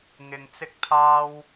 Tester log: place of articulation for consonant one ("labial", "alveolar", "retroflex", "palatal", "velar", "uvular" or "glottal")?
velar